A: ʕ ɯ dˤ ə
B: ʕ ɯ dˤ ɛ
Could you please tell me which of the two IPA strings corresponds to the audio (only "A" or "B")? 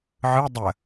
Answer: A